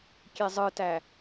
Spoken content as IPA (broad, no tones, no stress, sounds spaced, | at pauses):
kʲ e zˤ ɯ t æ